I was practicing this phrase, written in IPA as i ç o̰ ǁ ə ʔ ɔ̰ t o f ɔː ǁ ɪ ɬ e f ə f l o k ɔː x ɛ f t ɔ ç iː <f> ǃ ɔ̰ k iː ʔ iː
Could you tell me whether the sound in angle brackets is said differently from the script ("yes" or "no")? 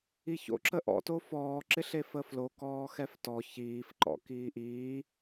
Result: no